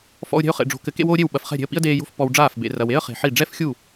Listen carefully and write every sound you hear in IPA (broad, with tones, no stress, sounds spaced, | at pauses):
f ɔ̰˧ ʊ̯ ɾʲ ɛ̤˧ ʊ̯ χ ḛ˨ ɖ͡ʐ o̤˨˦ k ɘ˨ k ḛ˦ w oː˦ ɾʲ e˦˨ w ɓ ɐ˨ f χ ɛ̤˦˨ ɾʲ e̤˧ ə̯ p ḭ˦ ə̯ d eː˧ j o̤˦ f p ɔ˧ w ɖ͡ʐ aː˦˨ f b ḛ˨ r ɐ˨ w e˦ ə̯ χ e̤˨ ħ i˦˨ ɖ͡ʐ ɛ˦ f xʲ u˦˨